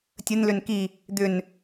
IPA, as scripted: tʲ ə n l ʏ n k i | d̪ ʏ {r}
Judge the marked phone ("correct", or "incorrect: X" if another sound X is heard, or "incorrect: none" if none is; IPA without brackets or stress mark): incorrect: n